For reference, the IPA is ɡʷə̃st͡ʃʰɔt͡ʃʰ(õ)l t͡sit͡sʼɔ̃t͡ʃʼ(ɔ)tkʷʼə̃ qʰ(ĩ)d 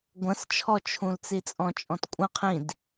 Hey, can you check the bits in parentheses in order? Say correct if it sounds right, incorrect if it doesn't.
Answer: incorrect: ũ, incorrect: ɔ̃, correct

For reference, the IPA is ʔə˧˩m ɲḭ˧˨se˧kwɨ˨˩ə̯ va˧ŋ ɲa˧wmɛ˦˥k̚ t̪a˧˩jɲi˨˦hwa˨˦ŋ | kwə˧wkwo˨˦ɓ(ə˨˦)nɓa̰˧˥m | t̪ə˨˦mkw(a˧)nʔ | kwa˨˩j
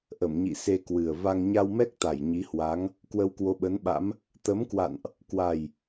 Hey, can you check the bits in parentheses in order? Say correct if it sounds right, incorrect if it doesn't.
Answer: correct, incorrect: a̰˧˨

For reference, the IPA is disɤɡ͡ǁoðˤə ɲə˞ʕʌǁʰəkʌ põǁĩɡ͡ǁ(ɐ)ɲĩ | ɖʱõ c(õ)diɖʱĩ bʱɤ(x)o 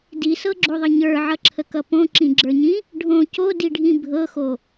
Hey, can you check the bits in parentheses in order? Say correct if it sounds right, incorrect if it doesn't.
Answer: incorrect: ə˞, incorrect: o, correct

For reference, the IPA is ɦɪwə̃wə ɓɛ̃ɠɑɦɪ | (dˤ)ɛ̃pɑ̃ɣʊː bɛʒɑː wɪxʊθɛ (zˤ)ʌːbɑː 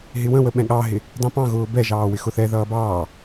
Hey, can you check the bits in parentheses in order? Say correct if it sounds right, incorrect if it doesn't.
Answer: correct, incorrect: ð

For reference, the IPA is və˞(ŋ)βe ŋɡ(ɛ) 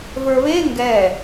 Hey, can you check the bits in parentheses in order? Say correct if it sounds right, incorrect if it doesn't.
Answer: incorrect: none, correct

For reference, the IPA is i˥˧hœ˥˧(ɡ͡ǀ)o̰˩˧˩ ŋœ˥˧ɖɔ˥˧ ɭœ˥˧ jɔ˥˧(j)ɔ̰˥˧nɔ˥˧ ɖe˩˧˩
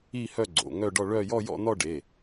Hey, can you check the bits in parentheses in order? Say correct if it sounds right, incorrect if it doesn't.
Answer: correct, correct

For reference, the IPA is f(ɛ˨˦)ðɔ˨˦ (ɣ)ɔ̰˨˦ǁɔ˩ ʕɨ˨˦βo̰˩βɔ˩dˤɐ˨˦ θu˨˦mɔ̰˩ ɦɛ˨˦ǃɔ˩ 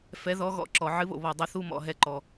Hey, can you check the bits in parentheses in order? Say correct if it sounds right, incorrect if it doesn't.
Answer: correct, correct

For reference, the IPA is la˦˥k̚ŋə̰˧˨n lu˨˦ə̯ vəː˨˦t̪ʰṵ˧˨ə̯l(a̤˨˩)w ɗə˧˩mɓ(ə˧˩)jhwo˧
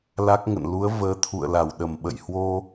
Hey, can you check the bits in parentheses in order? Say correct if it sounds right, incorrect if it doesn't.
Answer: incorrect: a˧˩, incorrect: ə̰˧˨

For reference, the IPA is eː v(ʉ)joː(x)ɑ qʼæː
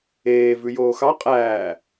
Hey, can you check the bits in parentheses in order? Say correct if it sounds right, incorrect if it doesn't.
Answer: correct, correct

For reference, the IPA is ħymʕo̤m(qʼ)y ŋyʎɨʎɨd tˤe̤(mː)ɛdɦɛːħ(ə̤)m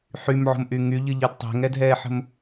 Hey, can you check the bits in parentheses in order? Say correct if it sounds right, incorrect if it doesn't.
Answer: incorrect: ʔ, incorrect: ŋ, correct

